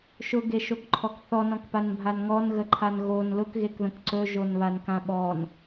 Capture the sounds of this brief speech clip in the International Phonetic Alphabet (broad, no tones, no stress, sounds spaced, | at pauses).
ʃ ʊ ɡ e ʃ o k ǃʰ ɔ k θ ɔ n ɔ̃ k p a n bʱ a n ŋ ɔ n ɣ ə ǃʰ a n ɣ o n l ʊ k ɣ e k ð ə̃ k ǀ ɵ ʒ o n β a n k ã ɓ ɔ n